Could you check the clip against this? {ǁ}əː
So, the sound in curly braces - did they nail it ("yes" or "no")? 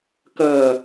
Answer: no